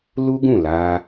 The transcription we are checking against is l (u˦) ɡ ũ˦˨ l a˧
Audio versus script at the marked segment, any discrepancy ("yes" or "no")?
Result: no